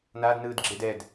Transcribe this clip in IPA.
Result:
n a d n ɯː d ɡ͡ǁ e d ɛ d

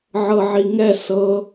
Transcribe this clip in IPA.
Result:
ʕ ɤ ʕ i ŋ ɛ s ɤ

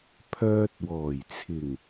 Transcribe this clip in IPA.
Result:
pʰ œː˧ t̚ w ɔː˨˩ j t͡sʰ ɪ˨˩ ŋ

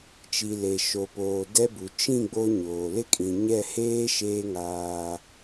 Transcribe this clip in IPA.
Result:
t͡ʃ i˨ l e˨ ʃ o˨ p oː˨ d ɛ˦ b u˨ t͡ʃ ĩ˦˨ ɡ͡b o˦ ɲ oː˨ l ɪ˦ kʼ ĩ˨ ɲ ɛ˦˨ h eː˦ ʃ eː˦ ŋ aː˦

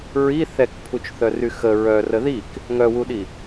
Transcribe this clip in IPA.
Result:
ɹ i θ ɛ k pʰ u t͡ʃ θ œ r y x ə ɹ œ r ə ð i k | ŋ œ w u ɗ i

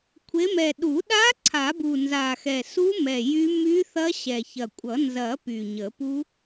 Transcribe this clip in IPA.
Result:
kʷʰ e˨˦ m ɛ˨˩ ɗ u˨˩˦ ɗ a˦˥ ǀʰ a˨˩˦ b u˨˩ n z a˨˩ x ɛ˨˩ s u˦˥ m ɛ˨˩ j y˦˥ m y˦˥ θ ɐ˦˥ ɕ ɛ˨˩ ç ɐ˨˩ kʷʼ ʌ˨˩˦ n z ɐ˨˩˦ p y˨˩ ɲ ə˨˩˦ p u˦˥

